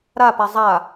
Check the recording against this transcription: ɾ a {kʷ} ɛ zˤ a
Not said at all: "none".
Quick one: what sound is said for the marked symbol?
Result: p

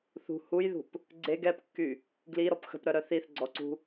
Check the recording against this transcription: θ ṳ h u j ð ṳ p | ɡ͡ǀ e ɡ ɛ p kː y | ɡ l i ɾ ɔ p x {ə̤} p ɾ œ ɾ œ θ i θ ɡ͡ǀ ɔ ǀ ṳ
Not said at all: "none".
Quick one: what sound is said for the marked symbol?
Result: ə̤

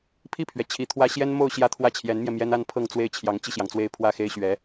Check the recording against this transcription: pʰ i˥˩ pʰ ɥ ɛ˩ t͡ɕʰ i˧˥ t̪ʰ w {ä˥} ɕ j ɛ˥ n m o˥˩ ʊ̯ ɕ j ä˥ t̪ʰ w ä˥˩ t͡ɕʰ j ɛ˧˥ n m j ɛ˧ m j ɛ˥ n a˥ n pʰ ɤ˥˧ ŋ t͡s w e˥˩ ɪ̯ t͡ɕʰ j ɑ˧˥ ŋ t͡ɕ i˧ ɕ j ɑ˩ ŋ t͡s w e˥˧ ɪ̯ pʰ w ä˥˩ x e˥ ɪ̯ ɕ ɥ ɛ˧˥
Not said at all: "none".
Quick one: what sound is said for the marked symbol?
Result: ä˥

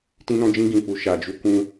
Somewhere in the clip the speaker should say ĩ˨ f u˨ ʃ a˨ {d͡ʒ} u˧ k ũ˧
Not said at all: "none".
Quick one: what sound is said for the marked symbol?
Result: d͡ʒ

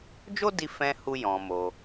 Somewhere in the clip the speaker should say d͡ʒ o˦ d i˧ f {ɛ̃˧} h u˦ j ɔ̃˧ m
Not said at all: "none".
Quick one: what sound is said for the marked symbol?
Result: ɛ̃˧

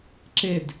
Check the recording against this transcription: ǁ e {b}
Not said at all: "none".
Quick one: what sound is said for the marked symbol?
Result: d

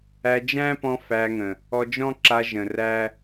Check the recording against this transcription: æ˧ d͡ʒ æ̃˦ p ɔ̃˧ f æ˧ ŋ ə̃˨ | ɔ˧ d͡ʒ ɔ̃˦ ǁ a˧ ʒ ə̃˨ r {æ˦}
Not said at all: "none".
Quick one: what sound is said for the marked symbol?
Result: æ˦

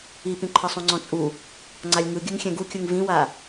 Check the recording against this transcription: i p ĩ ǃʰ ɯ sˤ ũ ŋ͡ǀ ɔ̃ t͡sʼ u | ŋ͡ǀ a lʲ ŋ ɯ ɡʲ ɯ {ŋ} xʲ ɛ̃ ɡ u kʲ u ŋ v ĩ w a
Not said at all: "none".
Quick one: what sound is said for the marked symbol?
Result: ŋ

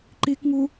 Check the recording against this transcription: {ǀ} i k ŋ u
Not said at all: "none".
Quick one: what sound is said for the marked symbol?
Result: ǃ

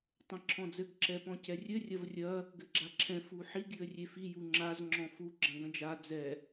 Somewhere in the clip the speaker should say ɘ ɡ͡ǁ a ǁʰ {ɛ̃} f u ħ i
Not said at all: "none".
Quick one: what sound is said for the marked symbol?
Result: ɛ̃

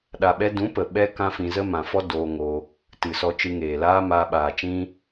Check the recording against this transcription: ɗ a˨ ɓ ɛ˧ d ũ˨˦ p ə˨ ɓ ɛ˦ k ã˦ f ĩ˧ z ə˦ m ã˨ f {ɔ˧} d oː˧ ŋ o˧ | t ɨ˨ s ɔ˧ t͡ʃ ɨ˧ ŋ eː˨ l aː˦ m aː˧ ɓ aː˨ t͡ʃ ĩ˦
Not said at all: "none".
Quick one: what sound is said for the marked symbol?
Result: ɔ˦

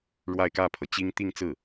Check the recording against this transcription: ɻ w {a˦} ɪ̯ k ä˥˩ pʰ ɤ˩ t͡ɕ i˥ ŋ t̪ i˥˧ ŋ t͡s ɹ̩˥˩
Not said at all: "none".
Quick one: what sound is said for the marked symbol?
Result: a˥˧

